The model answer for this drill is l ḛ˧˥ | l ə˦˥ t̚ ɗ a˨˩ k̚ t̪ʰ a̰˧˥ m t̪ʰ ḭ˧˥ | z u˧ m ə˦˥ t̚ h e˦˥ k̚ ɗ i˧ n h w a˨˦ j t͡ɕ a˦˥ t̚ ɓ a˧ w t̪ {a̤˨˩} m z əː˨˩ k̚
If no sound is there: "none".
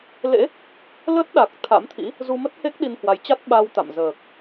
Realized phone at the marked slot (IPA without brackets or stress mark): a̰˧˨